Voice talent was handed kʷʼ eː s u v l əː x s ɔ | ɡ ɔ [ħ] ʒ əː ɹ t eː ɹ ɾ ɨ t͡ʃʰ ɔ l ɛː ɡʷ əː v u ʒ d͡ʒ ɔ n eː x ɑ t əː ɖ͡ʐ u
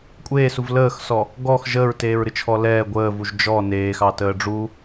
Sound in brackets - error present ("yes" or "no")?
yes